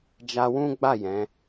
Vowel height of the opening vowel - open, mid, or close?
open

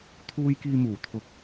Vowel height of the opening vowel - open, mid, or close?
close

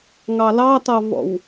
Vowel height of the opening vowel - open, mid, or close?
open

